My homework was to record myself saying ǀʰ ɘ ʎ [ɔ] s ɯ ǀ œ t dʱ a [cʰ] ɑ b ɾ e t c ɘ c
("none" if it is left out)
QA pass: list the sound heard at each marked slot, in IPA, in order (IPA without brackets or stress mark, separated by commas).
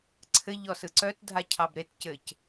ɔ, cʰ